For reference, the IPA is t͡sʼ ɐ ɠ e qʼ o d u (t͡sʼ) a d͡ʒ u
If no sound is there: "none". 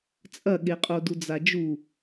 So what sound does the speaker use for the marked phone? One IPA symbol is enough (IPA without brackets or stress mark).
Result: d͡z